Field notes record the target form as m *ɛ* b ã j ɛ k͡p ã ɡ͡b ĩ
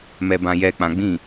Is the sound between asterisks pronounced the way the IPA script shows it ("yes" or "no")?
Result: yes